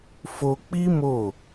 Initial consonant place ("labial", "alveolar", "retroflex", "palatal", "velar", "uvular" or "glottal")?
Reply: labial